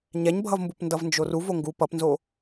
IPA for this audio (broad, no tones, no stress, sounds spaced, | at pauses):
ɲ ɛ ɲ bʱ ʌ v m b u p n d ʌ v n d͡ʒ o r u v o ŋ ɡ u p ʌ p n z o